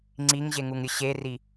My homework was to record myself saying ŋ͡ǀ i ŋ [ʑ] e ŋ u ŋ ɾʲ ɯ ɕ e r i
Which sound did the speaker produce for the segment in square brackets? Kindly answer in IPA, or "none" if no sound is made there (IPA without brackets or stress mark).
ʑ